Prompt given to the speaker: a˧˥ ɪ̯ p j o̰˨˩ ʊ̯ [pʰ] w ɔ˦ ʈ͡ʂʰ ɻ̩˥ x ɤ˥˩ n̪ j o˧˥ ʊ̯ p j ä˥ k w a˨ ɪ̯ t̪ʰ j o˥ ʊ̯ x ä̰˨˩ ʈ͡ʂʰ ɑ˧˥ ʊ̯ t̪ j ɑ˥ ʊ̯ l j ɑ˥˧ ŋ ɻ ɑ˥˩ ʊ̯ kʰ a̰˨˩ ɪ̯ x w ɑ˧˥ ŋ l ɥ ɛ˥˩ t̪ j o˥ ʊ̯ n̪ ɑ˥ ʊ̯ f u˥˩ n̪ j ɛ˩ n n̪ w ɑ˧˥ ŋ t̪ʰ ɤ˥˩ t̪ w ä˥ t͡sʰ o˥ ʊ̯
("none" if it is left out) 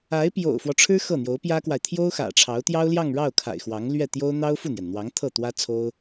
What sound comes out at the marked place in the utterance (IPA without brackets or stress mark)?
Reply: f